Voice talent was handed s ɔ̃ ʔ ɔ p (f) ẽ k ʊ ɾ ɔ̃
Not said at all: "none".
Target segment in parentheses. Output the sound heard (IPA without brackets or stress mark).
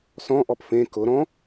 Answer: f